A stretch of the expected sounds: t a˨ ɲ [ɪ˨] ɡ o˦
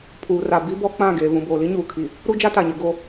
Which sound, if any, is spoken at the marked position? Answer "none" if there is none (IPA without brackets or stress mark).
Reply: ɪ˨